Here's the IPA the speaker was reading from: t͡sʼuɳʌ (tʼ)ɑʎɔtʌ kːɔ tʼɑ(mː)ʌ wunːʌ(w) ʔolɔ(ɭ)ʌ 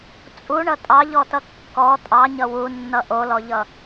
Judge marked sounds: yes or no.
yes, no, no, no

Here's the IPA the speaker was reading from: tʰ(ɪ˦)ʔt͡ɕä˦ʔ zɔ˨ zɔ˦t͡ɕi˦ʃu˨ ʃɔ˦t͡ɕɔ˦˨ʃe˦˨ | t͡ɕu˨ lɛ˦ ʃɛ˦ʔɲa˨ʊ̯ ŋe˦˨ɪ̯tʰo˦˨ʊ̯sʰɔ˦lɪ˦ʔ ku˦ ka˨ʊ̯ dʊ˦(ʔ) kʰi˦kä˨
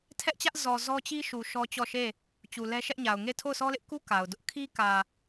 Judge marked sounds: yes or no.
no, yes

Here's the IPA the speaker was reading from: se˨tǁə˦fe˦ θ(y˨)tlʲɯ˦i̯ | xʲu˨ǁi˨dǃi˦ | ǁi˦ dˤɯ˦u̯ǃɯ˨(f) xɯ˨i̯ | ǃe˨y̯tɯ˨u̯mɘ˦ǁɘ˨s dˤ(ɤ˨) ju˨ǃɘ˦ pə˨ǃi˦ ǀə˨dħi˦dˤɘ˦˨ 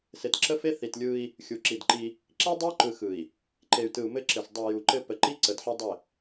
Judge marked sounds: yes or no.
no, no, no

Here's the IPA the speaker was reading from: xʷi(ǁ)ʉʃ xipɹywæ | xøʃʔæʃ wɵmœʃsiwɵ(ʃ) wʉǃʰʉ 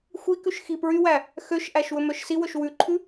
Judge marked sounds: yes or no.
no, yes

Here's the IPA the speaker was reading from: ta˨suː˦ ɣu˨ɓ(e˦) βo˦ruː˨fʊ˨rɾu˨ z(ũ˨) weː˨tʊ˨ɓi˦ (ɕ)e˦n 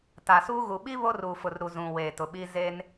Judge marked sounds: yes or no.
no, yes, no

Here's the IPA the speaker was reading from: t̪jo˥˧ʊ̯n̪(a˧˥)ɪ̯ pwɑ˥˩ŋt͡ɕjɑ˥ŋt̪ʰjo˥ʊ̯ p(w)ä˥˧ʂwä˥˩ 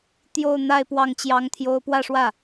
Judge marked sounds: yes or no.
no, yes

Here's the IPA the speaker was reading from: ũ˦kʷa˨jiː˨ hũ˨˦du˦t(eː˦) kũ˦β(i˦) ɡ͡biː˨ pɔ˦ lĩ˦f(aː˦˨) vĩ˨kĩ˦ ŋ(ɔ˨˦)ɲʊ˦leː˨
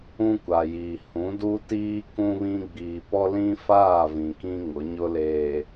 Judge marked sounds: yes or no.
no, no, yes, no

